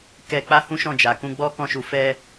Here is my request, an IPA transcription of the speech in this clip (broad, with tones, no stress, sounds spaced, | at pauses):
k ɛ˧ k͡p a˦ h ũ˦ ʃ ɔ̃˦˨ d͡ʒ a˨ k ũ˧ ɡ͡b ɔ˦ k ɔ̃˧ ʃ u˨ f ɛ˧